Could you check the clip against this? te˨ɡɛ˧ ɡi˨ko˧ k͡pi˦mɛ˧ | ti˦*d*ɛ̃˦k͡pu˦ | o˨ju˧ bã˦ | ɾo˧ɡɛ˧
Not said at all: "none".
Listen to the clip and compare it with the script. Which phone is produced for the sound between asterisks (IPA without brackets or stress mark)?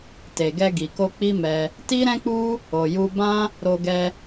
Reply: ɾ